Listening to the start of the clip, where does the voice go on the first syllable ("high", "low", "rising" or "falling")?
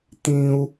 high